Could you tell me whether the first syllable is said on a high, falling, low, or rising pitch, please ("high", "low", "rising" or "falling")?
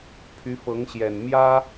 rising